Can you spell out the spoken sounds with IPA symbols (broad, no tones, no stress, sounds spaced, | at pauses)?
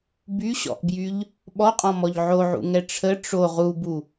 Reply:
b y ɕ ɔ̰ ʔ b j y ʎ | ɓ ɔ qʼ ɔ̃ m ɔ ʎ ʕ o ʕ ṵ ŋ ɛ ʈ͡ʂʰ ə ʈ͡ʂ o ʁ u b u